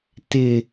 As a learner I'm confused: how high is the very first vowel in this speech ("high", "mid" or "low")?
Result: high